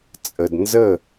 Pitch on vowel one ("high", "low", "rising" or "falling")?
low